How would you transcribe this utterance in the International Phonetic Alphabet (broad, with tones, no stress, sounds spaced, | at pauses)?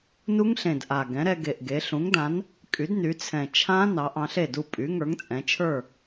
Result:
n u˦˥ ŋ ɬ ẽ˨˩ d ʔ a˨˩ ɡ ɛ̃˩˥ ɾ ɛ˧ ɡ e˨˩ ʔ ɡ e˩˧ ɬ ũ˩˥ ŋ d ã˩˥ n | kʼ y˩˥ d n y˩˧ t͡sʰ ɛ̃˨˩ t͡ʃʰ ã˦˥ n ɑ˩˧ ʔ ɑ̃˧ ɬ e˥˩ d u˥˩ pʼ y˩˥ ŋ ə˞˩˥ ŋ t͡sʼ ɛ̃˩˧ t͡ʃʰ ə˞˥˩